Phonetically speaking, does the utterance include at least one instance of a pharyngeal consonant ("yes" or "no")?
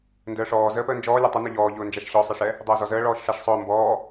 no